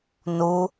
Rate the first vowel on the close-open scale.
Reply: close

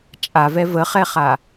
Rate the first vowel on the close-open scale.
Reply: open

